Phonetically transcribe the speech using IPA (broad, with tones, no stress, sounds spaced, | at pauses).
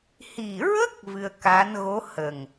h i˨˩ ɹ ə˦˥ k̚ v ɨ˧ ə̯ k a˧˥ n ɣ o˧˥ h ə˨˩ ŋ